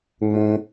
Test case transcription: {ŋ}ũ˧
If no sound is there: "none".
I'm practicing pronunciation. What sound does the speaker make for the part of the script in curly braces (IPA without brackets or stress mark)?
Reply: ŋ͡m